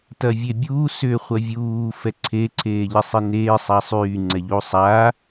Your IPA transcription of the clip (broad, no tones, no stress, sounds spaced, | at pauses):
t ɐ vʲ e bʲ uː s ʏ χʷ ɐ vʲ uː f ɛ ǀʰ e ǀʰ eː ʎ e sˤ i n eː sˤ a sˤ yː ŋ͡ǀ ɛ ʎ u sˤ a